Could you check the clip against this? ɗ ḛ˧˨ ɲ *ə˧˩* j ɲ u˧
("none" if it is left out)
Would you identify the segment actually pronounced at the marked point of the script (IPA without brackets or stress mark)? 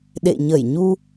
ə˧˩